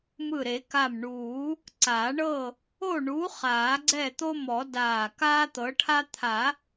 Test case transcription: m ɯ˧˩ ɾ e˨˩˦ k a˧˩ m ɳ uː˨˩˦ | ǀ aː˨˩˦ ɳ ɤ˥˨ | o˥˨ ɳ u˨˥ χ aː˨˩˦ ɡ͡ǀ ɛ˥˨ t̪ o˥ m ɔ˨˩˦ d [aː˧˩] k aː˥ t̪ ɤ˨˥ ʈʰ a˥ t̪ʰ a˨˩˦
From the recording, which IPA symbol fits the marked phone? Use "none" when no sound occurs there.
aː˧˩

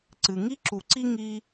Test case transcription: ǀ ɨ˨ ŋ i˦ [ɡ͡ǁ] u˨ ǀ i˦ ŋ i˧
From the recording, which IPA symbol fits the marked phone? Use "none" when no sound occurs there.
ǁ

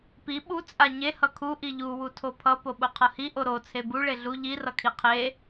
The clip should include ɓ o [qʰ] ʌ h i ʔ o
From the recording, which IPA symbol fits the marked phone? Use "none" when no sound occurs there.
qʰ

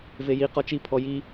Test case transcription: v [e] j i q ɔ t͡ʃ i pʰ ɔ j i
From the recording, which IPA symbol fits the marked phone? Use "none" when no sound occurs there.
e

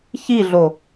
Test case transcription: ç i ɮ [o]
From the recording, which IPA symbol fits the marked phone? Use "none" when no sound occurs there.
o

